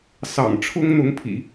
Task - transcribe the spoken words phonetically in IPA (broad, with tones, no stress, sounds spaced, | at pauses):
s ɑ̰˨˩ ŋ ʈ͡ʂʰ ʊ˥ ŋ n̪ ʊ˧˥ ŋ pʰ ḭ˨˩˦